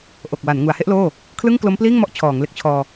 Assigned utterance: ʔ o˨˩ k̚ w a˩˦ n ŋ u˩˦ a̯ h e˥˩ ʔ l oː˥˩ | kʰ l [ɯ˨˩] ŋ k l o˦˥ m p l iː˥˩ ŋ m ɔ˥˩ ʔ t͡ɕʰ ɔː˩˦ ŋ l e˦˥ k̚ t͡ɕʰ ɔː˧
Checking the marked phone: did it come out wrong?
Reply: yes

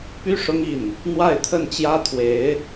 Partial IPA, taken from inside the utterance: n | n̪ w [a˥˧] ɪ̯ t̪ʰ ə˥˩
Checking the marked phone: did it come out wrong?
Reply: no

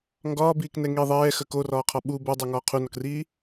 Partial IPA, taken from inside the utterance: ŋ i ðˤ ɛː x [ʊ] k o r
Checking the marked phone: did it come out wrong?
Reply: yes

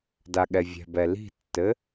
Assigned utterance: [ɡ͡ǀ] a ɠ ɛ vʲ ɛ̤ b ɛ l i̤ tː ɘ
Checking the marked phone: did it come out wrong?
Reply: yes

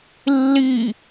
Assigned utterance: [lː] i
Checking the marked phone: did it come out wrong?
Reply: no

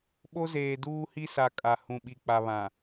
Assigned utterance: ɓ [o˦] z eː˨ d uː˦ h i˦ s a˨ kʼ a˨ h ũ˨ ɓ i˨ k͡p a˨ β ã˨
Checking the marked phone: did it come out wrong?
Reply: no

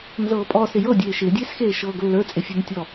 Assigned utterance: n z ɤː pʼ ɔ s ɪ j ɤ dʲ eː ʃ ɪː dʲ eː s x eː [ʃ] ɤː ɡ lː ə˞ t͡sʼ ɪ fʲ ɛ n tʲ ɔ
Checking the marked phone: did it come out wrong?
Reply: no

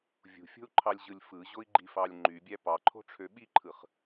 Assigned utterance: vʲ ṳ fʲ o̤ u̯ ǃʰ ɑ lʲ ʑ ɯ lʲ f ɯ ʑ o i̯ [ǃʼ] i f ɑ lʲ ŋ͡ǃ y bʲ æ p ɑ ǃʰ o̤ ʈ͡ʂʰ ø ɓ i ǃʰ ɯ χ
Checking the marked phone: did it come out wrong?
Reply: yes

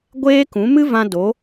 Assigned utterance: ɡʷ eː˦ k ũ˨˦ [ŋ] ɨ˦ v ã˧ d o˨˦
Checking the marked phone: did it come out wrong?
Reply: yes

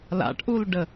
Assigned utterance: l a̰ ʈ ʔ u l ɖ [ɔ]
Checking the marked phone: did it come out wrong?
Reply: yes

